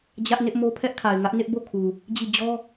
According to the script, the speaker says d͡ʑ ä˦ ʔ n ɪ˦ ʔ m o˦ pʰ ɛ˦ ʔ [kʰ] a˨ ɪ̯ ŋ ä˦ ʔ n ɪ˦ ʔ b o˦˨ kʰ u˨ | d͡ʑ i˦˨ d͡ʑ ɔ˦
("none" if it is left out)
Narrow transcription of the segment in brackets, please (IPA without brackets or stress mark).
kʰ